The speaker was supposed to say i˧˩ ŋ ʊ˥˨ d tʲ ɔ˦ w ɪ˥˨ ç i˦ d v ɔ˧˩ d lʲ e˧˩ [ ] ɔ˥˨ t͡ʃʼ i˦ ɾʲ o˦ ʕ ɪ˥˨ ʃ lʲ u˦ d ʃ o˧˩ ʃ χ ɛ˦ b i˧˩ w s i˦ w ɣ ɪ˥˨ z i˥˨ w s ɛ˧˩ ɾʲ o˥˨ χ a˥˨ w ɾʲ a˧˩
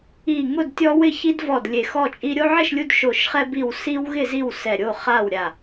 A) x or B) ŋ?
A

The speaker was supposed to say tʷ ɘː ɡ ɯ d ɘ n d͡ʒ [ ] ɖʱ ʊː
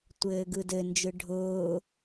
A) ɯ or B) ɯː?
A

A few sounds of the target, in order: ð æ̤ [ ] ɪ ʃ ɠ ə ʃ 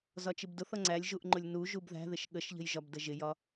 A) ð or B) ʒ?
A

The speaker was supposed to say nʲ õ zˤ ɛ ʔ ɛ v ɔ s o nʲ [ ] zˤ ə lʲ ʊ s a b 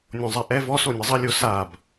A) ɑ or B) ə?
B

